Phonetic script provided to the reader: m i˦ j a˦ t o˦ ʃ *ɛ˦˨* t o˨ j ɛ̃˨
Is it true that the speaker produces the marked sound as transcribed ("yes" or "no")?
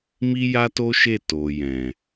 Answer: no